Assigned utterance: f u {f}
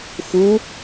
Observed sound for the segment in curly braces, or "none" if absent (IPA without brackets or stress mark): none